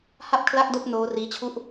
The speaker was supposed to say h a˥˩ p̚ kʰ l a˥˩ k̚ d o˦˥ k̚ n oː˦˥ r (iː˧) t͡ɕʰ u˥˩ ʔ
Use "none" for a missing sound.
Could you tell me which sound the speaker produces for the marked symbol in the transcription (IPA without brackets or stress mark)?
iː˦˥